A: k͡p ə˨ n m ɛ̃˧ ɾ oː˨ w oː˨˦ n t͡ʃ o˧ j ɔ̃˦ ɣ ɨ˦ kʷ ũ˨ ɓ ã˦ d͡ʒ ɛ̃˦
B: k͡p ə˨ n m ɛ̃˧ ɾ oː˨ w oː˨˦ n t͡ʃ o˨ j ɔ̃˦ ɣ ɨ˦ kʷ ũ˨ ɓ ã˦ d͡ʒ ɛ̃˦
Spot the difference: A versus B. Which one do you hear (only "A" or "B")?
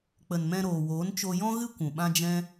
A